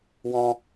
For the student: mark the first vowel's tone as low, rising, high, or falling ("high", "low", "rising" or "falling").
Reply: high